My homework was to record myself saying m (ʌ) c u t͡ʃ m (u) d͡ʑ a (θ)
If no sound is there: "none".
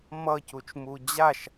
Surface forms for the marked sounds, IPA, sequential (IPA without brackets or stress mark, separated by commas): ʌ, u, ʃ